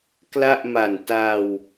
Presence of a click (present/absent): absent